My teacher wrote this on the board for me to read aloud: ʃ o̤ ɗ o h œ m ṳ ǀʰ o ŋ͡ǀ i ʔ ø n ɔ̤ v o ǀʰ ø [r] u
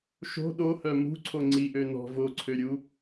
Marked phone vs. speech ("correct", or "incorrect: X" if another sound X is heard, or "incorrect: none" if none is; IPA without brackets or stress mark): incorrect: ɾʲ